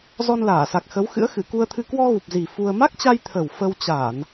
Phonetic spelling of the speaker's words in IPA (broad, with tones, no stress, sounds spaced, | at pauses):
z ɔ˧ n l aː˧˩ s a˨˩ k̚ x ə˨˦ w x ɨ̰˧˥ ə̯ x ɨ˧˩ k u˧ ə̯ t̪ʰ ɨ˧ k w ɔ˧ ɣ u˨˩ p̚ z i˨˩ f u˧ ə̯ m a˦˥ k̚ t͡ɕ a˧ j t̪ʰ ə˨˩ w f ə˧ w t͡ɕ a˧˩˨ n